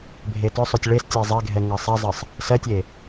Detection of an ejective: absent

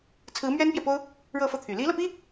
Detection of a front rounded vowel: present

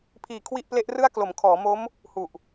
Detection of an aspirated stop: present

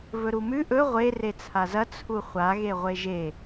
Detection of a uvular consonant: present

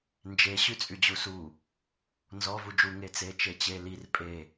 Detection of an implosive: absent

